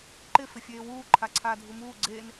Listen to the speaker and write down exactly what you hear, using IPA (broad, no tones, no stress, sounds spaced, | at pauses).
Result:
ǃ ɪ f ɪ fʲ eː w uː ǃʰ a ǀʰ aː dʱ u m uː ɡ͡ǀ eː n